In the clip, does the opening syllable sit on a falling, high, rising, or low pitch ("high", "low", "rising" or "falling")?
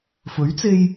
rising